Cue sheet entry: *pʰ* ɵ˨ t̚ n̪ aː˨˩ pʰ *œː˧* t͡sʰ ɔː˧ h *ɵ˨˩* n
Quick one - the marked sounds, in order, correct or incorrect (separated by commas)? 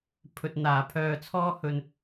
correct, incorrect, correct